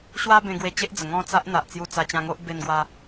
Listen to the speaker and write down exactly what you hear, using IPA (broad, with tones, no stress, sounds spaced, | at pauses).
ɕ w a˦ b ẽ˧ ɡ w e˧ t͡ɕ e˦ ʔ d͡z ə˨˩ ŋ ɔ̃˥˧ t͡s a˦ ʔ n̪ a˨ ʔ t͡s j u˧ t͡s a˧ t͡ɕ ã˧ ŋ o˦ ʔ b e˧ n ɡ w a˧